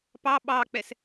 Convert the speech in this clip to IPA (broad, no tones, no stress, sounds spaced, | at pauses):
p ɑ ɓ ɑ k͡p ɛ s